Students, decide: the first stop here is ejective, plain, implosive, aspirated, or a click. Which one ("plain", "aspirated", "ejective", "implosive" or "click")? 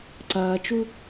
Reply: click